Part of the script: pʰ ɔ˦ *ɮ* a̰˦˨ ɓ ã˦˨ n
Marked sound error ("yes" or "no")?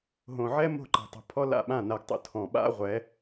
yes